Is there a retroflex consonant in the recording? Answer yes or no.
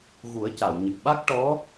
yes